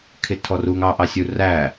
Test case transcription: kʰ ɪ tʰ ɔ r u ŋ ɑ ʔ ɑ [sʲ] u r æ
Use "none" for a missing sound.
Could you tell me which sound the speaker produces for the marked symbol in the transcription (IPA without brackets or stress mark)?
sʲ